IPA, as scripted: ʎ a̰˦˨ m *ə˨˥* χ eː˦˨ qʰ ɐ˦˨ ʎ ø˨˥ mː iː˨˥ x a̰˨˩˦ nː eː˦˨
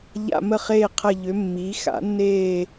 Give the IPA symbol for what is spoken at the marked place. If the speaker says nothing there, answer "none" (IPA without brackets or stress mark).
ə˦˨